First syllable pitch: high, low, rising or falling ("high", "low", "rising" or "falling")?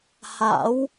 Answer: rising